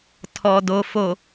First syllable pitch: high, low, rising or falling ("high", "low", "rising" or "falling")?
low